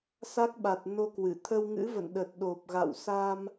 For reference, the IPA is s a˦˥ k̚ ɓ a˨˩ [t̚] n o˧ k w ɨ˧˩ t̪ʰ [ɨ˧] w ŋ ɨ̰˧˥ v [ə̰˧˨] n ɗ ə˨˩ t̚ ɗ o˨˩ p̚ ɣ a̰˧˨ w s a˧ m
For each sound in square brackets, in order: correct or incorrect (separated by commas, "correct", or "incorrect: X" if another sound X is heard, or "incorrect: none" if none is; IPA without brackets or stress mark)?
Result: correct, incorrect: ə˧, correct